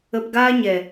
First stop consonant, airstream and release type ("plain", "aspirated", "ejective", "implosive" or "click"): plain